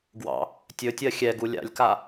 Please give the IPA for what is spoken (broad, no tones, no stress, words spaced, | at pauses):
ɡwɑ̰ | tʲɵtʲɜ xʲɛɡu lʲa̰lʲka